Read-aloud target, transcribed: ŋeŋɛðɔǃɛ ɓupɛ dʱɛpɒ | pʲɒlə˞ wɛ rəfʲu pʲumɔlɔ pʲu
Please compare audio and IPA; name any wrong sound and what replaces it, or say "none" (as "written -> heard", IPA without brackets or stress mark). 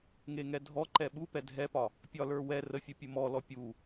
ð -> dʱ